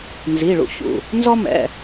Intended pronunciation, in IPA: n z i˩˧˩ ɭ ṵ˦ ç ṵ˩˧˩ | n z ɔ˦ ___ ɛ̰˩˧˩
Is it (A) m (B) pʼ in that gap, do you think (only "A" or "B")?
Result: A